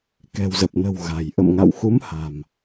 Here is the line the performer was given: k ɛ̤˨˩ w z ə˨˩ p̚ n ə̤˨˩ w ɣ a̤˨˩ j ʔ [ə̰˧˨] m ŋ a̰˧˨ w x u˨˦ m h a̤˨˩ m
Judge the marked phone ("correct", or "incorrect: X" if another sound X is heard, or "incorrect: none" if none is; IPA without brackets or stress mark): correct